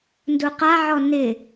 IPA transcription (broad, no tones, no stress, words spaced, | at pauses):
nduqaʕɔ nɪ